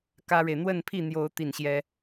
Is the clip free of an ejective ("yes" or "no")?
yes